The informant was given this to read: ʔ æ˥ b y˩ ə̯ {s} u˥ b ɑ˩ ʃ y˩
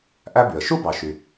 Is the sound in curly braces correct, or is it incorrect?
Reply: incorrect